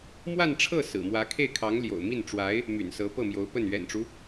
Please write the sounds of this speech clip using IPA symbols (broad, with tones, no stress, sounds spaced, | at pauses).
m w a˥˧ n ʈ͡ʂʰ ɤ˥˩ s ɹ̩˨˩ m w ä˧˥ kʰ e˥˩ ɪ̯ kʰ ɑ˧˥ ŋ l j o̰˨˩ ʊ̯ m i˥˩ n ʈ͡ʂ w a˧˥ ɪ̯ | m y̰˨˩ n s ɤ˧˥ p ɤ˥˩ m j o˧˥ ʊ̯ p ə˥˩ n ɥ ɛ̰˨˩ n ʈ͡ʂ u˦